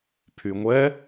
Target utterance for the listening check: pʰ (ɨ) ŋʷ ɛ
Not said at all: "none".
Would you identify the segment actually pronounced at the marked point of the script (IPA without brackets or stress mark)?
y